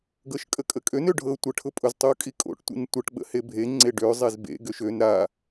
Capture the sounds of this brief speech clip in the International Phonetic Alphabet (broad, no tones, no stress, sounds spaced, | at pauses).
ɡ ɤ ʃ kʼ ə kʼ ə kʼ ø n ø ɖʱ ɤ tʷ ə ʈʰ ʊ pʼ ʊ z tˤ o kʼ i kʼ o̰ ʈ tʷ ḭ n tʷ ə ʈ ɓ ə̰ h e bʱ e ŋ͡ǀ e ɖ ø zˤ e z b ḛ ɡ ø ʃ ø n ɾ a